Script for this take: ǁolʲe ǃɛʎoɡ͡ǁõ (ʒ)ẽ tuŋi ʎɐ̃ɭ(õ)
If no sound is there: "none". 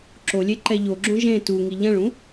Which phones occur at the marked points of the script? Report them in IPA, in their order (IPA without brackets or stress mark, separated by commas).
ʒ, ũ